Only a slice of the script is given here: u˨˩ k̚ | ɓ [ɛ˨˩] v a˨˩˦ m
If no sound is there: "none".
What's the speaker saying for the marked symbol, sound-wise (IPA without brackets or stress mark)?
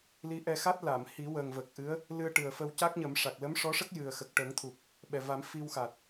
ɛ˨˩